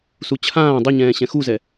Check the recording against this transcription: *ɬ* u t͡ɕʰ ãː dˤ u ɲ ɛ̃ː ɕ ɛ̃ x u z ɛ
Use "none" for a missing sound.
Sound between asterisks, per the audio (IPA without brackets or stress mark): s